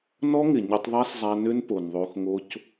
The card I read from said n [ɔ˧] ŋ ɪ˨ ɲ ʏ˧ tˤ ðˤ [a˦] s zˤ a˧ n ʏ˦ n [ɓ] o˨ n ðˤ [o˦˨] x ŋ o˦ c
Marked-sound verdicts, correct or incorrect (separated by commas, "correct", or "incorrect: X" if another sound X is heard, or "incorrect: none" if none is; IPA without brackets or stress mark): incorrect: ɔ˦, correct, incorrect: p, incorrect: o˧